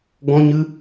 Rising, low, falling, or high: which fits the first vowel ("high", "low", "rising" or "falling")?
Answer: high